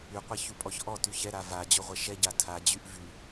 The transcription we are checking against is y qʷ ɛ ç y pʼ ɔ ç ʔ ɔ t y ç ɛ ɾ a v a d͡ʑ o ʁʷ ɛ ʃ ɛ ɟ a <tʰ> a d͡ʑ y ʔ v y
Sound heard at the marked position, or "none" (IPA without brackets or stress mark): tʰ